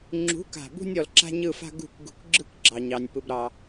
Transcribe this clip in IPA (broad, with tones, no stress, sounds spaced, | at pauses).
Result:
ŋ͡ǁ ṳ˨˦ k a̤˨ b ṳ˧ nʲ ɔ˨ l ǁ a̤˦ ɲ ɯ˦˨ f a̤˦ ɡ ṳ˦˨ k ɡ ṳ˧ k ɡ͡ǁ ɯ˦ k ɡ͡ǁ ɑ˨ ɲ ɑ˨ nʲ p ɯ˧ b ɾ ɑ˧